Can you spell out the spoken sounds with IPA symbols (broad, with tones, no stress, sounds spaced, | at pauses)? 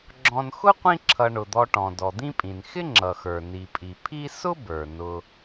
ɡ͡ǁ ɔ̃˨ n x ʊ˥ qʷ ĩ˦ ǁʰ ʌ˨ ɳ ʊ˩ d̪ ɔ˨ ʈ ɔ̃˩ d ɔ˩ d̪ ĩ˦ pʼ ĩ˩ n x ɪ˥ ŋ͡ǁ ʌ˩ x ə˞˩ n i˩ pʼ i˩ pʰ i˦ s ʊ˥ b ə˞˩ n ʊ˨